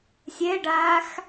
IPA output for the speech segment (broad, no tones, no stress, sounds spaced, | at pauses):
sʲ ɛ ɖ aː x